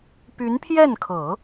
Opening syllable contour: rising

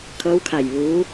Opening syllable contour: rising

